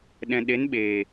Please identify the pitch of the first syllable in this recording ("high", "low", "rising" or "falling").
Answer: low